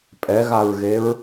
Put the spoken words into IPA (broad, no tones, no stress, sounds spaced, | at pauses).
pʼ ɛ ɣ a ɹ ɣ e ɹ